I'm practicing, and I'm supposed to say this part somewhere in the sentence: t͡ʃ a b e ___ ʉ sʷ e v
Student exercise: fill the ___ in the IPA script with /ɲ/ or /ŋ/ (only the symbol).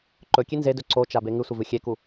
ŋ